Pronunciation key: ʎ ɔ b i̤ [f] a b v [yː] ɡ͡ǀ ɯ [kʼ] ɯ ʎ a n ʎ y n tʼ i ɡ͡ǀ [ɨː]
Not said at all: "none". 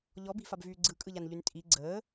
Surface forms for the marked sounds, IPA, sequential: f, yː, kʼ, əː

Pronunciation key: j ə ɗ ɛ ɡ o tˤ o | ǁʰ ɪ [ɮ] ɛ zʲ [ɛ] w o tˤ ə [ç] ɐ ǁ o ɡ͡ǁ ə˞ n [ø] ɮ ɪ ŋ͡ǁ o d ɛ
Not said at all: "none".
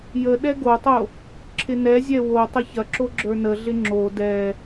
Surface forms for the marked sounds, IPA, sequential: n, ɛ, ç, ə

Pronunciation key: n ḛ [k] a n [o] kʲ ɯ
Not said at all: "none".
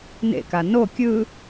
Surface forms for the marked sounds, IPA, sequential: k, o

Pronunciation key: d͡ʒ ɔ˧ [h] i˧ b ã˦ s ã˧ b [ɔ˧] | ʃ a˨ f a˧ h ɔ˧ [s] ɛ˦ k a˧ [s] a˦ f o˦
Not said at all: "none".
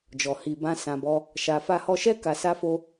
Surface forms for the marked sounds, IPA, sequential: h, ɔ˦, ʃ, s

